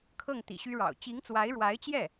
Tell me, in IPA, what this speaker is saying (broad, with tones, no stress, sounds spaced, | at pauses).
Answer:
kʰ ɤ˥˩ ŋ t̪ ḭ˨˩ ɕ y˥ ɻ ɑ̰˨˩ ʊ̯ t͡ɕ i˧˥ ŋ t͡s w a˧˥ ɪ̯ ɻ w a˧˥ ɪ̯ t͡ɕ j ɛ˥˩